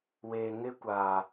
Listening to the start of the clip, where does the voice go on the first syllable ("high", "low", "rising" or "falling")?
low